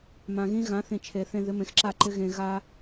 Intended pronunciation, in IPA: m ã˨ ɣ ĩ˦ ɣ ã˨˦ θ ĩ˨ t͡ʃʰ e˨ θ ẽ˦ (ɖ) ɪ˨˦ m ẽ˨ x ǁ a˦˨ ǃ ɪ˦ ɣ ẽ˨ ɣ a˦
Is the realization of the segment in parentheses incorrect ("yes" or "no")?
yes